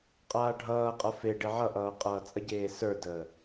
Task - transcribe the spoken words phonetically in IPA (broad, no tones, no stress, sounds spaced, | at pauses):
qʼ aː ɖʱ ʌː qʼ ʌ f e ɖ e ʕ ʌ ʔ ʌː qʼ ʌː t͡sʼ ə ɟ eː s ə˞ d əː